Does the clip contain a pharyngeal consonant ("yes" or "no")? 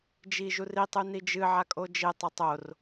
yes